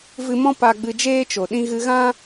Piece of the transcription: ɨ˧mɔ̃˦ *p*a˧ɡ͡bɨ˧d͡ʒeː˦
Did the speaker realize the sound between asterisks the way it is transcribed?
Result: yes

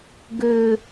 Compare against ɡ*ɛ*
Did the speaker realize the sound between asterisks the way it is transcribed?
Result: no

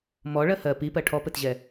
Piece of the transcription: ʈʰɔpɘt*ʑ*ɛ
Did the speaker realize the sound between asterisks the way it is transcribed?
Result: yes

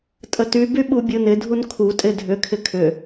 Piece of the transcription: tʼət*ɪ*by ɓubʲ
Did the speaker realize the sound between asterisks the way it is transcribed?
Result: no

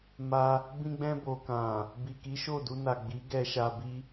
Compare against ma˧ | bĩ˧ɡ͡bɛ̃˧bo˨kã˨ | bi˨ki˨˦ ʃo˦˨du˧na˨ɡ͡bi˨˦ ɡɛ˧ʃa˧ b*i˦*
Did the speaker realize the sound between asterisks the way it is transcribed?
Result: yes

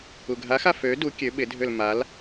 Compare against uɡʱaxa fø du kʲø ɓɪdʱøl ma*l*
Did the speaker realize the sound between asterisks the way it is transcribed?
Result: yes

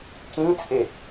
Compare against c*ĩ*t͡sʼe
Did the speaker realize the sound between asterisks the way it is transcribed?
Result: yes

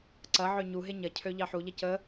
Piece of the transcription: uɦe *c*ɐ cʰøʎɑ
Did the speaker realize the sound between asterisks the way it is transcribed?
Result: no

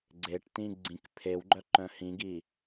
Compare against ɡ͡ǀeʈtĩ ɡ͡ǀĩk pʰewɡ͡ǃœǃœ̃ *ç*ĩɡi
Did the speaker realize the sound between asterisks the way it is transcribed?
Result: no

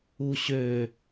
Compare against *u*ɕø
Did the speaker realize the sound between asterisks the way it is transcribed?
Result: yes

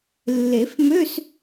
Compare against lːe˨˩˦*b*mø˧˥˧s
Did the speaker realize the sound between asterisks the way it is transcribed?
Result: no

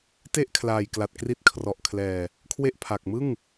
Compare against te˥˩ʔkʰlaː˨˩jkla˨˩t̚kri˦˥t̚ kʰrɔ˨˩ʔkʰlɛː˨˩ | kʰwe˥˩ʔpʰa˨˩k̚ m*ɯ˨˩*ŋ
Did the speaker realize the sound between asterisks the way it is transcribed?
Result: no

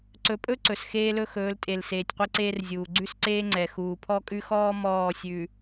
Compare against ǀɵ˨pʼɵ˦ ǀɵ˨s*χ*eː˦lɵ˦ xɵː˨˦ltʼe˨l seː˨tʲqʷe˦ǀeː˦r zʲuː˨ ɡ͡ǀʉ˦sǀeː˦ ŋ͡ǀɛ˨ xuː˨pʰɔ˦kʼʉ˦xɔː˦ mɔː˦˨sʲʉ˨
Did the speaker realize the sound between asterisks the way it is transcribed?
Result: no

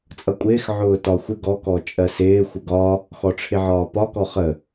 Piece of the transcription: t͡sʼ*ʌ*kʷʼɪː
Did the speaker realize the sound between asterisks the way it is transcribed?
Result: yes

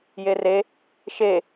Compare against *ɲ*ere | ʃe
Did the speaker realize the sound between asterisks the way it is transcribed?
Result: no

